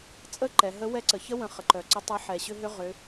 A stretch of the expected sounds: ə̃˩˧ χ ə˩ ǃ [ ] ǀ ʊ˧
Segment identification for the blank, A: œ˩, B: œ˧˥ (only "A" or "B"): A